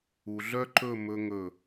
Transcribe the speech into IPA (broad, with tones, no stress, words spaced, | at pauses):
u˨ɮœ˦ǃɵ˦˨ mɵ˧ ŋɵ˦˨